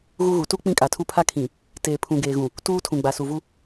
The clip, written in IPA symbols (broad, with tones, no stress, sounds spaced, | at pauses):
ɣ u˦ ɣ u˨ t u˦ k͡p ĩ˦ kʼ a˨ tʰ u˦ pʰ a˦ kʰ ĩ˨ | t eː˨ pʰ ũ˨ ɡ eː˨ ɣ ũ˨ | t uː˦ tʰ ũ˨ ɡ͡b a˨ s u˨ v u˦